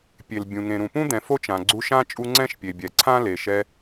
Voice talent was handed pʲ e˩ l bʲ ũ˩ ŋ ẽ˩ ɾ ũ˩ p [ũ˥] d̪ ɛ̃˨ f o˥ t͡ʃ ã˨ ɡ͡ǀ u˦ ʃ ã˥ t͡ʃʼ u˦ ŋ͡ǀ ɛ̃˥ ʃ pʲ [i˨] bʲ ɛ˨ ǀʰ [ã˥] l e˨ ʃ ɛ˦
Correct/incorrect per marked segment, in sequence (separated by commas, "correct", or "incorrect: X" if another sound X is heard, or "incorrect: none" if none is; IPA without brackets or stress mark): correct, incorrect: e˨, correct